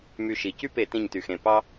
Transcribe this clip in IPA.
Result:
m y˧˩ ʃ i˩ c y˥ p e˧˩˧ t ĩ˧˩ ɲ t y˩ x ẽ˩ p ɑ˥

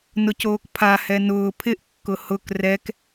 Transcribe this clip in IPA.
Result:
n ʊ c oː k pʰ a h ɛ n ʊː pʰ ɪ ʔ kː ʊ h ʊ k r ɛ k

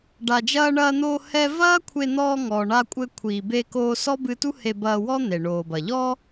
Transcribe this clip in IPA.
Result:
ɖ a˩ d͡ʒ ɐː˧ ɳ ɐː˧ n̪ oː˧ h ɛ˧ v ɐː˥ kʷʰ e˧ n̪ ɔː˧ ŋ ɔ˩ ɳ a˧ kʷʼ ɘ˧ kʷʰ i˩ b e˧ k oː˧ s ɔ˥ b ɨ˧ t u˥ h e˧ b ɐː˧ w ɔ˥ n̪ e˩ ɳ oː˩ b ɐ˩ ʎ ɔː˥

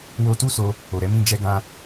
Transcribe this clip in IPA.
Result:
w o˧ t u˦ s o˧ | o˨ ɾ ɛ˨˦ m ĩ˦˨ d͡ʒ ɛ˧ ɡ ã˧

